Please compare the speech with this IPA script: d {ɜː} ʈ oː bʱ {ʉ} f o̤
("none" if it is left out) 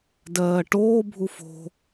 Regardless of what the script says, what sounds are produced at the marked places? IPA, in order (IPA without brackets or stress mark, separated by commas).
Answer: ɜː, u